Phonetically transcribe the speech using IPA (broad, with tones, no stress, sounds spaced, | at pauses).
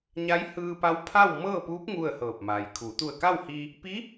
ɲ a˧˥ j h ɯː˧ p a˧˥ w pʰ a˥˨ w m ɤː˥˨ p u˧˥ p̚ ŋ u˥˨ ə̯ h ɤː˧˩ p̚ m a˩ j kʰ u˩˧ t̪ u˧˩ ə̯ k a˥˨ w h iː˧ | p i˧˥